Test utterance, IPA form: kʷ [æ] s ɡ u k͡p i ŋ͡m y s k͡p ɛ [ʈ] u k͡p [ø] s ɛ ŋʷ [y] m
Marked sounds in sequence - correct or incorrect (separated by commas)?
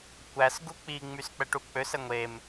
correct, correct, correct, incorrect